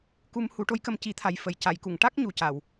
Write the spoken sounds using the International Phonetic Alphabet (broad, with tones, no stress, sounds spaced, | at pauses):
k u˧ m h u˨˩˦ ʈ o˧˥ j k ə˧ m c i˨˩˦ t̪ʰ a˨˩ j f ə˨˩˨ j c a˨˩˨ j k u˨˩˨ ŋ ʈ a˦˥ k̚ ɲ u˨˩ c a˨˩˨ w